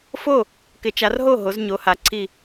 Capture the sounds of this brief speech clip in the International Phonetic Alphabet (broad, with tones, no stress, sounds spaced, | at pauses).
f o˥˨ | k ɪ˨˦ t͡ʃ a˨˦ r ɦ o˥˨ ɦ o˨˦ z ɲ o˨˦ h a˨˦ ǀʰ i˥˨